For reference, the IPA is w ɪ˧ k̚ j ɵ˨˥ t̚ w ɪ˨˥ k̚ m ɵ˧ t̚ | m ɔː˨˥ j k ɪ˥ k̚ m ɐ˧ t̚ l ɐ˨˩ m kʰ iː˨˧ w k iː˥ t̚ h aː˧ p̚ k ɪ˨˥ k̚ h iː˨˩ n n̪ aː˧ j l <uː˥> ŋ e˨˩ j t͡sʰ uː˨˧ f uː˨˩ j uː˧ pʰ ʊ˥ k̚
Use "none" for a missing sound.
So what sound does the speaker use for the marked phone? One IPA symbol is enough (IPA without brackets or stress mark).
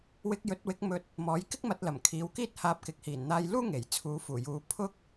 uː˥